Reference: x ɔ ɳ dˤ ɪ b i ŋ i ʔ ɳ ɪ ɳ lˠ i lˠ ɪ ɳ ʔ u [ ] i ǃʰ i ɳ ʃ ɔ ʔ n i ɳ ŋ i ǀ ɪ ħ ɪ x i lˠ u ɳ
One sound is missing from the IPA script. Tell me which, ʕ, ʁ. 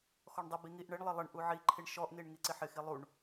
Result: ʕ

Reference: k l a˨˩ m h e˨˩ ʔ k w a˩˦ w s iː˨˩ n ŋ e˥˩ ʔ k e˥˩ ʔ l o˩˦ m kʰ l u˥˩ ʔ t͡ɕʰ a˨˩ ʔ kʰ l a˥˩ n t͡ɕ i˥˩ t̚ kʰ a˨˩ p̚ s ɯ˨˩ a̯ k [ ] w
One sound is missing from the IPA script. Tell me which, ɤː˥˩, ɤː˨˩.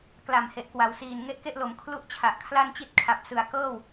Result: ɤː˥˩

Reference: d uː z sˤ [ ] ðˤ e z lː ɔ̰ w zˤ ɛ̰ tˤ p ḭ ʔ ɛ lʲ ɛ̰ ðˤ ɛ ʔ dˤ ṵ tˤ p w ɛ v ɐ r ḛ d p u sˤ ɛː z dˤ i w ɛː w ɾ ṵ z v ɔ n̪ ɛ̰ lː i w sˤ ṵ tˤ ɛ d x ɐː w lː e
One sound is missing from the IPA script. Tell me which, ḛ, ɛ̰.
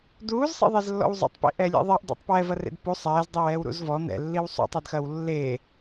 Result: ḛ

